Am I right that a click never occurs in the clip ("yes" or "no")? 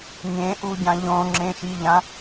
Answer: no